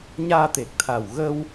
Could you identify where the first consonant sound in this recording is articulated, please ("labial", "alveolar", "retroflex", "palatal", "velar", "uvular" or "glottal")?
palatal